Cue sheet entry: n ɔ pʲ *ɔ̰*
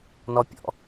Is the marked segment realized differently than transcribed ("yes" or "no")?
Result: no